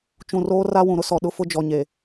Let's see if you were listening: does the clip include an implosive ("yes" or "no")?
yes